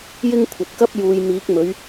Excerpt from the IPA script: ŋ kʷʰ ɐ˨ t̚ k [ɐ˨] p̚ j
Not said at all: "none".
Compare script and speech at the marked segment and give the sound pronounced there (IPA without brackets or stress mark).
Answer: ɐ˥